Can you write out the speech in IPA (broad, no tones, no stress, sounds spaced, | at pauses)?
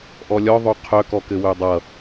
ʔ ɔ lʲ ɔ ðˤ o qʰ œ k ɔ k ɘ w ø dˤ ʌ